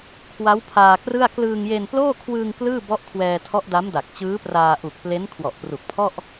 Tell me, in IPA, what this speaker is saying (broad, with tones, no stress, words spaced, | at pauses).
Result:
kʰwa˦˥wpʰaː˧krɯ˥˩a̯ klɯː˧ŋje˧nploː˥˩ kʰwɯː˧ŋ klɯː˥˩bɔ˦˥ʔkʰwɛː˧tʰɔ˦˥ʔ da˦˥mda˨˩k̚t͡ɕɯː˦˥praː˧ ʔu˨˩k̚ple˦˥n kʰwɔ˨˩ʔpru˨˩k̚pʰɔ˥˩ʔ